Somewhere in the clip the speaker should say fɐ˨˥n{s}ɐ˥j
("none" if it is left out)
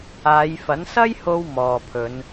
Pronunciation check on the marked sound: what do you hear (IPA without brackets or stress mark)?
s